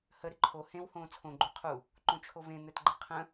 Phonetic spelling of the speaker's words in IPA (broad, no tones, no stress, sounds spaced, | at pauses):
h ə ɾ ɪ ǃʰ o h ẽ w h õː t͡sʰ õ ɡ͡ǃ u qʰ u | ǃ õ t͡ʃʰ o β ẽ n̪ ɛ t ɡ͡ǃ ɪ qʰ ə̃